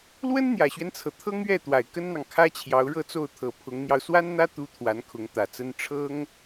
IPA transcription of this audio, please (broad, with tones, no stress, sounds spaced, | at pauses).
l w ə˥ n n̪ j ä˨˩ ɕ ɥ ɛ˦ n t͡sʰ ɤ˩ t̪ʰ ɤ˥ ŋ ɥ ɛ˥˩ t̪ w a˨˩ ɪ̯ k ə˥ n n̪ ɑ˨ ŋ kʰ ä˥ t͡ɕʰ j ɑ˧˥ ʊ̯ ɻ ɤ˥˧ t͡s o˥˩ ʊ̯ t̪ʰ ɤ˨˩ pʰ ʊ˧˥ ŋ n̪ j ɑ˧ ʊ̯ s w a˥ n n̪ ä˥ t̪ u˧˥ t̪ʰ w a˧˥ n kʰ ʊ˧˥ ŋ t̪ ä˨˩ t͡s ə˥ n ʈ͡ʂʰ ɤ˥ ŋ